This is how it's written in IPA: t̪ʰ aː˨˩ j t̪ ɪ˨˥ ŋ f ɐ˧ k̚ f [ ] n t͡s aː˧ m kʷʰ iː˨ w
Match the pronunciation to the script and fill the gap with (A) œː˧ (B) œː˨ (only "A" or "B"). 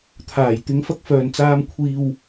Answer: B